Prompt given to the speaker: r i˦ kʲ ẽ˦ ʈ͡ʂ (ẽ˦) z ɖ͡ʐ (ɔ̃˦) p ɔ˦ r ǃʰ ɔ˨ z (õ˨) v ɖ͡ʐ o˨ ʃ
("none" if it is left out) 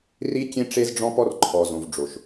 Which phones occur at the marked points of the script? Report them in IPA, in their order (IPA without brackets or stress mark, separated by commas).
e˦, ɔ̃˦, õ˨